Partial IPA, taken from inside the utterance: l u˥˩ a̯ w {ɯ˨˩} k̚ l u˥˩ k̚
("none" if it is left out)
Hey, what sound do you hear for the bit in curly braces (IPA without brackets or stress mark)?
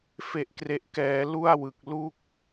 ɯ˨˩